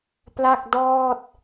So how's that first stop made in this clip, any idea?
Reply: plain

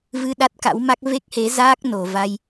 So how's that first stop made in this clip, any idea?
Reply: implosive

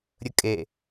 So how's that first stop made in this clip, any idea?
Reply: ejective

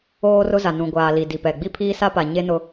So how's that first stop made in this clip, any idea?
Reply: plain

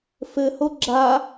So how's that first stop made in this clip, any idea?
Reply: click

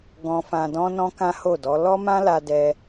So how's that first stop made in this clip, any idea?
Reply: plain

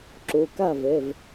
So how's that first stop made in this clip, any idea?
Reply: click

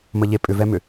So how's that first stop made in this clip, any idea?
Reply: ejective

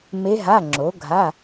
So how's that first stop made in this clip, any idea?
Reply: click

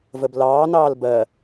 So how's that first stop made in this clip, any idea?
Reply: plain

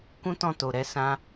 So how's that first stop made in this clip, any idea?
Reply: plain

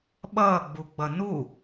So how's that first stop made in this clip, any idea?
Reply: implosive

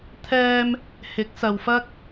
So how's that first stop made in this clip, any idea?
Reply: aspirated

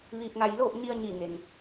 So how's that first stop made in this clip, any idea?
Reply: plain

